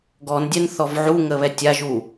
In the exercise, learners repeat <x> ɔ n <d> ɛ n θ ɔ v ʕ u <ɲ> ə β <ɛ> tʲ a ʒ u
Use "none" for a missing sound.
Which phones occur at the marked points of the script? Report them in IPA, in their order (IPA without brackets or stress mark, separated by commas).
ɡ, dʲ, ŋ, ɛ